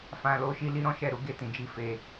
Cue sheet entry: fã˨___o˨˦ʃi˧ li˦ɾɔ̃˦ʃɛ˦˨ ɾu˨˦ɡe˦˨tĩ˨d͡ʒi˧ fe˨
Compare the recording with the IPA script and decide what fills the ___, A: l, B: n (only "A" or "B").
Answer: A